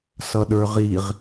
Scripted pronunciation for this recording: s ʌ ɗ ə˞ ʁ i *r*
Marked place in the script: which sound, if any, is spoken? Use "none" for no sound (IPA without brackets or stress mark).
ʁ